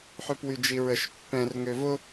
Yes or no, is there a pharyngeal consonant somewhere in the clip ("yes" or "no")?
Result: yes